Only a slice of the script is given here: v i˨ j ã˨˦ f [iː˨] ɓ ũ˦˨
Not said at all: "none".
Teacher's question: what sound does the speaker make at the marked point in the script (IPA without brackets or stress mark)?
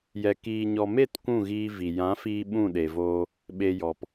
iː˧